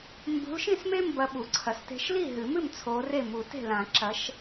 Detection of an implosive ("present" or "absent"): present